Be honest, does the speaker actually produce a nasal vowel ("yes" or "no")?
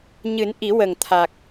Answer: no